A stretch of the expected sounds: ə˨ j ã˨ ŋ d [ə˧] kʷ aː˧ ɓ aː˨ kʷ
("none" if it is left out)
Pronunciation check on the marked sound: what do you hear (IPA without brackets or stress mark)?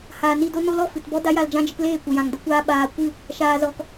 ə˦